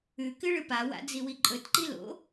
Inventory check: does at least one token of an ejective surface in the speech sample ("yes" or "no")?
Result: yes